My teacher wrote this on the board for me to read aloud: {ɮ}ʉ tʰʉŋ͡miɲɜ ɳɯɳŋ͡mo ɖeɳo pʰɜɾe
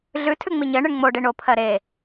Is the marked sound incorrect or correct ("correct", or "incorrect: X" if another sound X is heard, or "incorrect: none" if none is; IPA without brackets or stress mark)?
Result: correct